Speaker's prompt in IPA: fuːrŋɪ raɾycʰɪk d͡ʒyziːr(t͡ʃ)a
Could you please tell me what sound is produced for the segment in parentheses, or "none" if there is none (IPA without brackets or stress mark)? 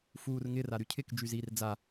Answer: d͡z